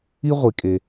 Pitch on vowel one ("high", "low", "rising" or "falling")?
high